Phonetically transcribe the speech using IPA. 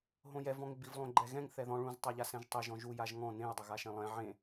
ɦ õ j ɛ v ɔ̃ ŋ ɪ b i v lˠ õ ɡ͡ǃ ɛ ɣ ɛ̃ ŋ θ ɛ ð ɔ̃ ɭ ũ z tˤ a ʎ a s ɛ̃ ʒ tˤ ɪ ʒ ɔ̃ ʒ u j a ʒ ŋ ɔ̃ n ẽ j dˤ ɪ ɣ a ʃ ɛ̃ lˠ ɛ̃ ʕ ẽ

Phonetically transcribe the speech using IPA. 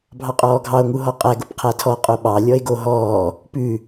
bʱ ɑ qʼ ɔː ɡʱ ɑ o̯ ŋ u ɦ ɔ qʼ æ ɡ o p qʰ æ tʰ ɔ qʼ o ɓ ɑ lʲ ɔ e̯ ɡ o ɦ ɔː | p ʉ

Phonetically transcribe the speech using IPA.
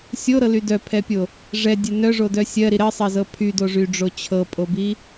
sʲ o ɾ ɤ l y d œ pʰ ɛ pʲ o | ʐ ɛ dʲ ɛ n œ ʐ o d œ sʲ ɜ ɾ i ɾ ɜ sˤ ɜ z ɤ pʰ y d o ʐ y ɖ͡ʐ o t͡ɕʰ ɤ pʼ o b i

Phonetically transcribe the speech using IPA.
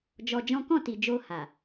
d͡ʒ ɔ˧ d͡ʒ ɔ̃˦ k ɔ̃˦˨ t i˨ d͡ʒ o˧ h a˨

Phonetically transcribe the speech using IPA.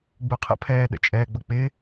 ɡ͡b u qʰ ə̰ pʰ ɛː ɗ ə̰ t͡ʃʼ ɛː ɡ͡b ʌ k͡p ɪ

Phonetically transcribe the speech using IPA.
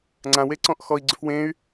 ŋ͡ǀ ã w e ǀ ɔ̃ ʔ x ɔ i̯ ɡ͡ǀ ʏ f w ẽ y̯

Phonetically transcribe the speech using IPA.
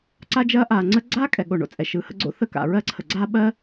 ǀ a˥ d͡ʒ ɐː˥ ʔ aː˩ ŋ͡ǀ ə˥ ɡ͡ǀ aː˥ kʼ ɛ˩ ɠ o˩ ɳ o̰˩ t͡sʼ ɛ˩ ʃ ɯː˩ h ə̰˥ ɡ͡ǀ o̰˥ θ ə˥ k a̰˩ ɹ ɜ˥ ǀʰ ə˩ ɡ͡ǀ aː˥ ɓ ɜ˥

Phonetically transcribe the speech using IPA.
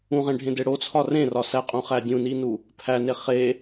ũ ʁ ẽ ɖʱ ẽ d e ɽ o t͡sʰ ɒ r ẽ r ɒ s æ qʼ ũ χ æ dʲ ũ n i n u | pʰ æ n e χ e

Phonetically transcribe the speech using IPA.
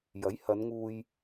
j ɐ˨˥ j h ɐ˨˧ n ŋ uː˧ j

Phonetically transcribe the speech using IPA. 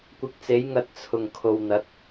kʷ ɪ˧ k̚ t͡s e˨˥ j ŋ ɐ˧ t̚ t͡sʰ ʊ˨˩ ŋ kʰ o˨ w n̪ ɐ˨˥ t̚

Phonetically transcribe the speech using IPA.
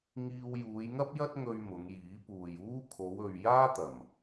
ŋ iː˧ w j uː˨˧ j ŋ ɐ˥ p̚ j ɐ˥ t̚ ŋ ɵ˧ ɥ m ʊ˨˧ ŋ j iː˨˥ p uː˨ j uː˥ kʰ o˨˧ w ɵ˨ ɥ j aː˥ t̪ ɐ˨˩ m

